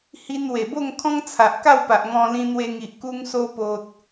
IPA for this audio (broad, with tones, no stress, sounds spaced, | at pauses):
h i˧ n w e˨˩ b o˥˧ ŋ kʰ ɔ̃˦ ŋ t͡sʰ a˨ ʔ k a˥˧ w p a˨ ʔ ŋ ɔ̃˧ l ĩ˧ n̪ w e˧ ŋ i˨ ʔ k u˧ ŋ s o˧ p o˨ t̚